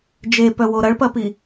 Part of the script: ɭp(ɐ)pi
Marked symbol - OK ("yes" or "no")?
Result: yes